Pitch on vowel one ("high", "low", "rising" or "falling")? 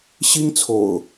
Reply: high